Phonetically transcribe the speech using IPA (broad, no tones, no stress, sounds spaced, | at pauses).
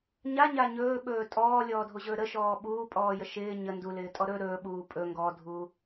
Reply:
ɲ a ɲ a ɲ ɵː ɓ ɵː tʼ ɔː lʲ ɔː dʱ o ʑ ɵː ɾ ə ʃ ɔː ɓ uː pʼ ɔː j ə ʃ ɪː ɲ ə n d u l ɪː tʼ ɔ ɾ ɵ ɾ ɵː ɓ uː pʼ ɵ ŋ ɡ ɔ dʱ uː